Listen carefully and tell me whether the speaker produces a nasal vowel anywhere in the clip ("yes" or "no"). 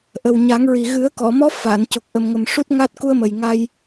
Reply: no